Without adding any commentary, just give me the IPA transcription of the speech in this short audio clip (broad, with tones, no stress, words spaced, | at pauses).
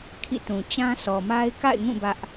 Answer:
kʰḭ˦˨tũ˨ t͡ɕã˦sʰɔ˨ ma˦ɪ̯ ka̰˦˨ɪ̯ŋũ˦˨ bä˦ʔ